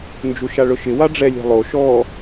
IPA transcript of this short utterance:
nd͡ʒuʃaɭʊʃɪ waɖ͡ʐɛ lʲɛ̤lˠo ʃɔ

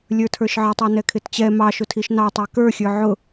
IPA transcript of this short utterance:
lʲə˞tʰə˞ʃʕɪtˤə˞ nɛkʰɪtt͡ɕɛ mɑʃʊtʰiʃ nɑtˤæ kə˞xʲə˞ ʕʊ

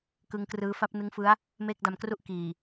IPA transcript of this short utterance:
kɯ˧ŋkrɯː˧ fa˦˥p̚nɯ˦˥ŋfɯ˦˥a̯ | meː˥˩k̚da˧mkru˥˩ʔ kiː˨˩

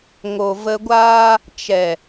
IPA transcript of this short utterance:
ŋo˨və˧ɡʷaː˦ | t͡ʃɛ˨

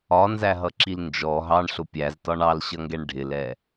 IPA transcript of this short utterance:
ɒnzæɦʌǁil nd͡ʒɔ ɦɑɳɬʊ pʲæztɒɳ ɑlɕʌŋɡɛɳ ɖʱɪlɛ

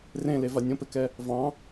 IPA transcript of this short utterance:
rẽle vanʲõpɘkɛ | vɑ̃

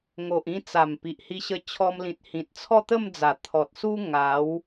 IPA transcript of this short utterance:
ŋo˨ʔĩ˧ t͡sa˨˩mpi˨ʔ hi˧ɕə˧t͡ɕʰɔ˧mlĩ˨t̚ hĩ˨t̚t͡sʰɔ˥˧t̪ə˥˧md͡za˨˩ t̪ʰɔ˨t̚su˦ ŋa˨˦w

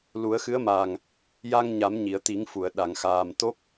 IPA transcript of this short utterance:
lu˨˩˦ə̯xɨ˧˥ə̯maː˨˩ŋ | ja˧ŋ ɲa˨˩˦mɲi˨˩˨ə̯t̪i˨˩˦ŋfu˨˩˨ə̯ ɗa˨˩˨ŋxaː˨˩m t̪o˦˥k̚

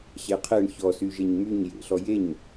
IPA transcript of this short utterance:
ɕɛqʰɛɳ çɔ syʒeɲmyɲ jḛɬɔjeɲ

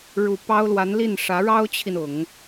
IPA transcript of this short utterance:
ɻu˨˩ pɑ˥ʊ̯lwa˧˥nli˥˩n ʂä˧˥ ɻɑ˥ʊ̯t͡ɕʰi˨n ʊ˨˩˦ŋ

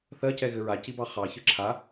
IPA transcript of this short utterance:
θɜcɛɣɘ ɹacibɑ χɑçɯ ǁʰa

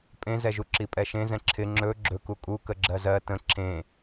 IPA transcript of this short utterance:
pʼẽzɛʒu ǁipʼɛʃẽzɛ̃ ǁʰɪ ŋ͡ǁɵ ɡ͡ǁɵku kʼu kəɡ͡ǁɜzɜ tə̃ ǁʰẽ

